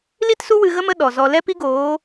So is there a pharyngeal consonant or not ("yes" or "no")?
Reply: no